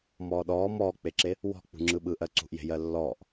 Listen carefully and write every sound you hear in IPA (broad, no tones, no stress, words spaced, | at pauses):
mɔːɗɔː mɔːk͡peǁe | wɔ̤ k͡pṳŋ͡ǁɯɓɯ ʔɜǀṳʔje̤ jɜlːɔːʔ